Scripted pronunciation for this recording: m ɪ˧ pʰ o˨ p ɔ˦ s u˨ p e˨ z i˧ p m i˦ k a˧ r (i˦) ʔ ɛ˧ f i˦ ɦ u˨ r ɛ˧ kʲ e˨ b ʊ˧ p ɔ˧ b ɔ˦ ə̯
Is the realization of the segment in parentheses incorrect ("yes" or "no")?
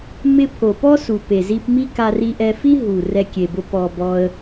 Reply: yes